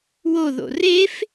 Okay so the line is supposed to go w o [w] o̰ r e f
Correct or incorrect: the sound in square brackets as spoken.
incorrect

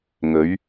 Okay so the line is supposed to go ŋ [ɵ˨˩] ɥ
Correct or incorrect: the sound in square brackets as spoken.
incorrect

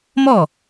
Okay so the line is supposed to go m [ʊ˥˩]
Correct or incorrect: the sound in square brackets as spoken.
incorrect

